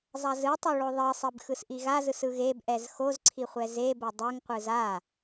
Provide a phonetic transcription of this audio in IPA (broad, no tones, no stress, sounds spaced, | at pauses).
zˤ a z ɯ tˤ o ɭ o ðˤ i sˤ i b x ɯ s ʔ i ɣ a z ɯ s ɯ ɣ e b ʔ ɛ z x o z ǀʰ i χʷ ɛ z e b o dˤ ɯ ŋ qʷ ɯ z a